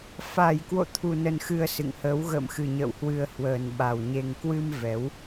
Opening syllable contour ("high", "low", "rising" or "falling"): low